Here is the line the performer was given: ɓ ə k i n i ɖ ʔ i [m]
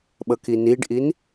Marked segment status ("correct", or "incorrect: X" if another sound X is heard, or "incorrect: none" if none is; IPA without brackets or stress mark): incorrect: n